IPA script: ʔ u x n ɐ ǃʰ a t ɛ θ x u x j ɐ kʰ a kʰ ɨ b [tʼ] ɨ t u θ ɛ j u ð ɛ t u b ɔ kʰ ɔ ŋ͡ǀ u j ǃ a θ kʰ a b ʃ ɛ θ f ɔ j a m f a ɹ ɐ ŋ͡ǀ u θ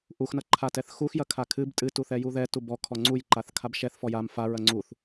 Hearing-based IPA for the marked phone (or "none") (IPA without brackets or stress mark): tʼ